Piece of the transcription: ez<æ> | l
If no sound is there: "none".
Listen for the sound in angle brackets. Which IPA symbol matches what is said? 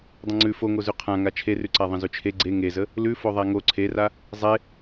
ə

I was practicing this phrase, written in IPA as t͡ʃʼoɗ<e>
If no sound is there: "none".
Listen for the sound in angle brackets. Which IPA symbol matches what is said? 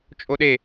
e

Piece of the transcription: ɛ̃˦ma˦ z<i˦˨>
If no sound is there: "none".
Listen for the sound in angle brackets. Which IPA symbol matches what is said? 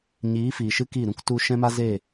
e˦˨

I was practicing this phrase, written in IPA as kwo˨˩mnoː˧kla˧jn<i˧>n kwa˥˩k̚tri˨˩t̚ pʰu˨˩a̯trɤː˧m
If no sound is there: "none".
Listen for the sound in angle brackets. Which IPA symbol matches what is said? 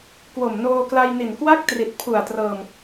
i˨˩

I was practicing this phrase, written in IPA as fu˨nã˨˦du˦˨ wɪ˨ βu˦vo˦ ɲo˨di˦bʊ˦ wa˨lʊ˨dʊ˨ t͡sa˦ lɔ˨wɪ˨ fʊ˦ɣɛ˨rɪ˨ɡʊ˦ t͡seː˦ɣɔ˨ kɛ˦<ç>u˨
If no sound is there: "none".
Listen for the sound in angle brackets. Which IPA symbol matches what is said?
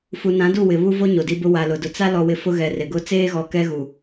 ɣ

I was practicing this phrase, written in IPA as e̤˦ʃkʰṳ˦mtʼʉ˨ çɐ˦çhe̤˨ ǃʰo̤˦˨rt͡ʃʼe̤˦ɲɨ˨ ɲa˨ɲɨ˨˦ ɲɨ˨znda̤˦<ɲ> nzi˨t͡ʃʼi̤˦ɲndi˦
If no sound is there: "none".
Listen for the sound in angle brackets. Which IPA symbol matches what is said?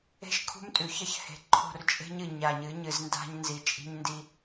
ɲ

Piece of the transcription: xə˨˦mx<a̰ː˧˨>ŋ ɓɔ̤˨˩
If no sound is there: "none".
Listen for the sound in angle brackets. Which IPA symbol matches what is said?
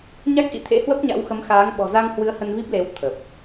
aː˨˦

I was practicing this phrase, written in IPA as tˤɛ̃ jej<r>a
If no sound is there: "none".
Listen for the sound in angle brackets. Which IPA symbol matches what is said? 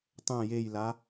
l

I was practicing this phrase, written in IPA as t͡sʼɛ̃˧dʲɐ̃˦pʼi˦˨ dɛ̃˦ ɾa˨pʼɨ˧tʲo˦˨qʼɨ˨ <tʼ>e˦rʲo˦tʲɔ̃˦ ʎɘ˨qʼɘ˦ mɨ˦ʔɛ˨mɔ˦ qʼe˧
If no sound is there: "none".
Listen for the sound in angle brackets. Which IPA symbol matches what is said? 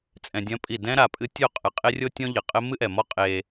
qʼ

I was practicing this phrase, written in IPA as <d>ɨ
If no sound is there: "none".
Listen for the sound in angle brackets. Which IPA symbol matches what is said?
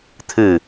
t̪ʰ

